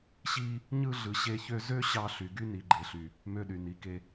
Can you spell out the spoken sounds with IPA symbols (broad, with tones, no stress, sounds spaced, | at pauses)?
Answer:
ɕ i˦ | ɲ ɯ˦ ɮ ɯ˧ ɕ e˦ ç ø˦ z ø˦ ɕ ɑ˧ ɬ y˨ ɡ y˦ n i˨ ɡ͡ǃ e˨ ɬ y˨ | m ø˧ ɗ y˨ n i˨˦ k e˧